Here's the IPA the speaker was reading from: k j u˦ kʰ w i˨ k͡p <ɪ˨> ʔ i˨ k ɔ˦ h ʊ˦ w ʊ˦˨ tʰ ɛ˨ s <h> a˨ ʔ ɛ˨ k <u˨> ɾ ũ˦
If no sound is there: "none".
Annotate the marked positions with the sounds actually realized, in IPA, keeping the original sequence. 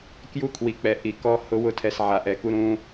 ɛ˨, ʕ, u˦

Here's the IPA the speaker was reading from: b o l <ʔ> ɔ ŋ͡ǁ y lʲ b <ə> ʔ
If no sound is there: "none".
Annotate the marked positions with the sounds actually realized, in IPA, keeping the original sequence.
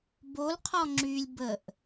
qʰ, ə

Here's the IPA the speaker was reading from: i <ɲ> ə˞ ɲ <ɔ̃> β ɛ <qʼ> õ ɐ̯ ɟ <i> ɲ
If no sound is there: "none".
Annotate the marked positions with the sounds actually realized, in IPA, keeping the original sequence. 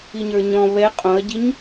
ɲ, ɔ̃, qʼ, i

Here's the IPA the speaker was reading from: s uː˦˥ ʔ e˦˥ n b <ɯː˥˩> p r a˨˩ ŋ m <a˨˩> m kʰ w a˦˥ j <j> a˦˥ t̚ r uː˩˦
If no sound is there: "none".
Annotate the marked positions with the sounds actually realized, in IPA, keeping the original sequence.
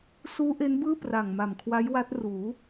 ɯː˥˩, a˨˩, w

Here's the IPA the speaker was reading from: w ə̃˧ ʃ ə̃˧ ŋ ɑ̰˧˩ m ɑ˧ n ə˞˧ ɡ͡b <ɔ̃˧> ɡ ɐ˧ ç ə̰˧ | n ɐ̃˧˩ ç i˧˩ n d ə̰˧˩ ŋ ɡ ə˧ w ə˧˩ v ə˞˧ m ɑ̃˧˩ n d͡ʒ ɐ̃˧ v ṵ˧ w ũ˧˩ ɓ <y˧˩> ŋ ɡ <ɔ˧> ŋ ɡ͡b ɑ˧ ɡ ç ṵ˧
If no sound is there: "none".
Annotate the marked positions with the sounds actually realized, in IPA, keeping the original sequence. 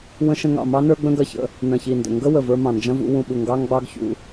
ə̃˧, u˧˩, ɑ˧

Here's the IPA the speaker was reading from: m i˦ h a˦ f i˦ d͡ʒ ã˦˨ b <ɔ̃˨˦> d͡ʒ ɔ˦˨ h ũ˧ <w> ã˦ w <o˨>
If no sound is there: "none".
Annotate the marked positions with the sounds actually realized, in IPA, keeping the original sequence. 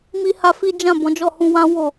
ɔ̃˨˦, w, o˦˨

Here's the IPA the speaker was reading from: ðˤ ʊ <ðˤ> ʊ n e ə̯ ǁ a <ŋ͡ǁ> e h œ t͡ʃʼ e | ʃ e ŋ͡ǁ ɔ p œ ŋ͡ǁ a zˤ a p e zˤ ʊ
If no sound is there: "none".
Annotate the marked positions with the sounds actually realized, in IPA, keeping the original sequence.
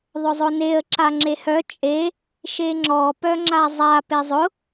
zˤ, ŋ͡ǁ

